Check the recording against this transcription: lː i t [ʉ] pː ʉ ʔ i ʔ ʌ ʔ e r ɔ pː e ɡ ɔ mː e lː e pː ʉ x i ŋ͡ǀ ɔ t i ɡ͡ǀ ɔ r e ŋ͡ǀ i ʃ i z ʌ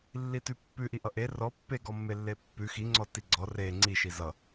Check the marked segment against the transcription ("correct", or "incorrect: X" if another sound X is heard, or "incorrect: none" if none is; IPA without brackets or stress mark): correct